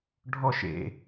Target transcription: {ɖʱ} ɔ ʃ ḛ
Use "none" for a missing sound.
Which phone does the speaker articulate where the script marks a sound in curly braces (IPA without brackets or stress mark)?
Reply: ɖʱ